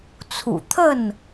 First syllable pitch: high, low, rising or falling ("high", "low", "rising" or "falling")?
low